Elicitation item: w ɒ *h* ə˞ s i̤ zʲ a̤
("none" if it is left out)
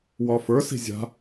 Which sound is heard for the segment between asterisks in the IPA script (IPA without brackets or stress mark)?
f